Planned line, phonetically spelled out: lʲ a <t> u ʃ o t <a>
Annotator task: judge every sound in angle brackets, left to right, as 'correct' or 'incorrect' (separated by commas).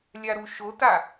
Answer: incorrect, correct